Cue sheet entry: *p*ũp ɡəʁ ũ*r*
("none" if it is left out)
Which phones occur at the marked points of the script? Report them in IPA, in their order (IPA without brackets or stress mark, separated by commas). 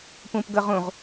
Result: p, ʁ